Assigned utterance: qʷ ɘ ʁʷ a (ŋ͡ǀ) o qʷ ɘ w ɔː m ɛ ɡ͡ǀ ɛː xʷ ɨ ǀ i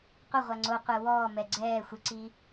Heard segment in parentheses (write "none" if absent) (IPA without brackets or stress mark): ŋ͡ǀ